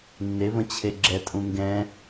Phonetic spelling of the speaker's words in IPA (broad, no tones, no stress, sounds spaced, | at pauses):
nː e v ə̃ t͡ɕʰ e ɡ͡ǁ ɛ tʼ ũ ŋ ɡ ɛ̃